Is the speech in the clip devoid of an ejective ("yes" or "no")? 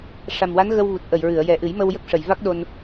yes